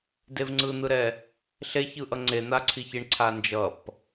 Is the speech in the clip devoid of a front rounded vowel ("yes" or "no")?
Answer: yes